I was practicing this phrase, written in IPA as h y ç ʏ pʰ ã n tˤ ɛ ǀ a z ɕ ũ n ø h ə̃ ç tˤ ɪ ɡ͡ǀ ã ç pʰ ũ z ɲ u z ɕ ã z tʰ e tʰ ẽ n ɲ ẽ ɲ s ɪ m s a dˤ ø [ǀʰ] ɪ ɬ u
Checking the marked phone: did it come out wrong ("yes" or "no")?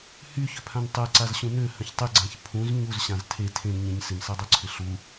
no